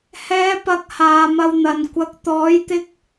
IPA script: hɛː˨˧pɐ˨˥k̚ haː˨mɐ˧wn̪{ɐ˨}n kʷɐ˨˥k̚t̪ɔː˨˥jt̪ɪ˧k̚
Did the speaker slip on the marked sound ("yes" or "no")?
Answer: no